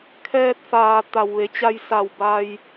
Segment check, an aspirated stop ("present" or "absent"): present